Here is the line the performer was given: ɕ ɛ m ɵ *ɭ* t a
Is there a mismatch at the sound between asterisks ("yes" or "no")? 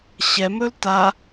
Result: yes